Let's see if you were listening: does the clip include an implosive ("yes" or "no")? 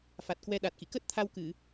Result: yes